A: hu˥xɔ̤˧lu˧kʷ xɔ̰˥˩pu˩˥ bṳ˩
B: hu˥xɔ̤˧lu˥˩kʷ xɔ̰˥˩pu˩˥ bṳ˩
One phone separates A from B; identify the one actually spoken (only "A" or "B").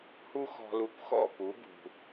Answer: A